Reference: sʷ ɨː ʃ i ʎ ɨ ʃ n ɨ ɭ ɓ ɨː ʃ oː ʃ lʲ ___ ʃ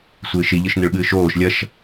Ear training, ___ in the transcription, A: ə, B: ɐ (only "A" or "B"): B